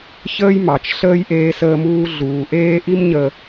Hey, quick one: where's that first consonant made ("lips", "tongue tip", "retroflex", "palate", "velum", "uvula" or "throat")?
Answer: palate